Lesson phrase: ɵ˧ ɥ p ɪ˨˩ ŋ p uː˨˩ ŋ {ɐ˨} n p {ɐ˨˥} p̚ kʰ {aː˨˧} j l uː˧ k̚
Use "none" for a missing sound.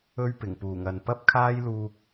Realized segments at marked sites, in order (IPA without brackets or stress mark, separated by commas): ɐ˨, ɐ˥, aː˥